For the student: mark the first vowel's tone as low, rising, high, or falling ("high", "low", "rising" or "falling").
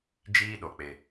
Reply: high